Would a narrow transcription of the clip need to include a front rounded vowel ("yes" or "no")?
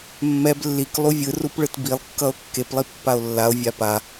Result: no